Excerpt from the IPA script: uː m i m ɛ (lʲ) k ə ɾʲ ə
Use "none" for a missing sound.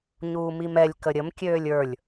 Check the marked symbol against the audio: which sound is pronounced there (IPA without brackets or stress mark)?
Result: lʲ